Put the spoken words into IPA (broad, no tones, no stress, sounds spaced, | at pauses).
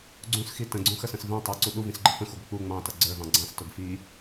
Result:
ɡ͡ǀ ũ s x i t ə̃ ɡ͡ǀ ũ x ə s ə̃ s v ɛ̃ tˤ ə˞ ǀ u ɗ u v ĩ s ɡ͡ǃ ə f ə̃ x u ɡʷ ɪ k͡p u ŋ͡m ɑ̃ t ʌ ɡ͡ǀ ə˞ v ɑ̃ ɡ͡ǀ ɑ̃ s t ʊ ɡ f i